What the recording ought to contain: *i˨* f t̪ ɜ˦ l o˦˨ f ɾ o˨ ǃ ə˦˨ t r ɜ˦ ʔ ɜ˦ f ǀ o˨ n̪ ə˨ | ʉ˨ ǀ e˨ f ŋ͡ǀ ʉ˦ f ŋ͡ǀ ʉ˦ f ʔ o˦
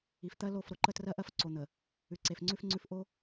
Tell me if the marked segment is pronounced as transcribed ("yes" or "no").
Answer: yes